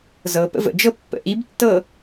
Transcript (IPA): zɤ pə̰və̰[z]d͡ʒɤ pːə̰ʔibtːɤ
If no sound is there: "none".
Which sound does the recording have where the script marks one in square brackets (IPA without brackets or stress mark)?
none